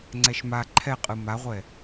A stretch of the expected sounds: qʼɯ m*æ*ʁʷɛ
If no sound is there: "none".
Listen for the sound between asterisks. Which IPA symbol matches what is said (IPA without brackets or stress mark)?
a